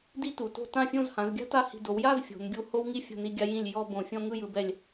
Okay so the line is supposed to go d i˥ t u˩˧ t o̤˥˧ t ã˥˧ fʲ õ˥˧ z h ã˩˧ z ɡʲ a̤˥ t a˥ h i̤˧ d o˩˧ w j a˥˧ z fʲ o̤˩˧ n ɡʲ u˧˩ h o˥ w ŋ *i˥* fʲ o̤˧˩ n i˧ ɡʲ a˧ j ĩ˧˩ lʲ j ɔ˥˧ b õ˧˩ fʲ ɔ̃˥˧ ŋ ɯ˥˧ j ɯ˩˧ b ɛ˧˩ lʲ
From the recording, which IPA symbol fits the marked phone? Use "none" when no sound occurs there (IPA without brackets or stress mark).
i˥